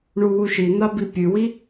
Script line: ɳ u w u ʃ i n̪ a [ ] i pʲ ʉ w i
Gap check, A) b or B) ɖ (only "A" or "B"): A